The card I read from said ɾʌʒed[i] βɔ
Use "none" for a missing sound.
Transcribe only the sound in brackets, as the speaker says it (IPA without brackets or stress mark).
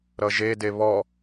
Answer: e